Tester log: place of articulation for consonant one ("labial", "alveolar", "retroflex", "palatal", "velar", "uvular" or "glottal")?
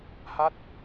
glottal